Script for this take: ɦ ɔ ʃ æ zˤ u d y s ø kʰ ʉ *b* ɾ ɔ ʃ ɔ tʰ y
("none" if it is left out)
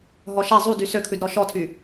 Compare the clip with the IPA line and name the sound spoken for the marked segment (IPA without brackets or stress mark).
d